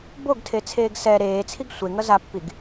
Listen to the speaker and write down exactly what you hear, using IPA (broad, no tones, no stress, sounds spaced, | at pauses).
b o ɡ tʰ e t͡sʰ eː ɡ s ɛ ɾ eː t͡sʰ i ɡ sʷ e ŋ ʌ z a pː i ɡ